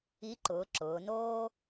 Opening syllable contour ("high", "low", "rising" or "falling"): rising